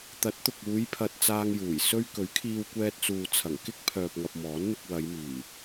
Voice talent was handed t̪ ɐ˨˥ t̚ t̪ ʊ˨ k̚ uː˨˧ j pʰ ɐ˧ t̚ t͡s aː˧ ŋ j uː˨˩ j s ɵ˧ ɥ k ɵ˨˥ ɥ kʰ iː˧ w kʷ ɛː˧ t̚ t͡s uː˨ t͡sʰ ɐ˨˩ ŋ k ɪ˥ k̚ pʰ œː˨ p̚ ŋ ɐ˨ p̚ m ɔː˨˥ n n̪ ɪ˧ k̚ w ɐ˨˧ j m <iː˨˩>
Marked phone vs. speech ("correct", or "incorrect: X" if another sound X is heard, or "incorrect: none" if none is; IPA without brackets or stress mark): correct